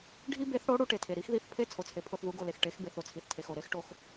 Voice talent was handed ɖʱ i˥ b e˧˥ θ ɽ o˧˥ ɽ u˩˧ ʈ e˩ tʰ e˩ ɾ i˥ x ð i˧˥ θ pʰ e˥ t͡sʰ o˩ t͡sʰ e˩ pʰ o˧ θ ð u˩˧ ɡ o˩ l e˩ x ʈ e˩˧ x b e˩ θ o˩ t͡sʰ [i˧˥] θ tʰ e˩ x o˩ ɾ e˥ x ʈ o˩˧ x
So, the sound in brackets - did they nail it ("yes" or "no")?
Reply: no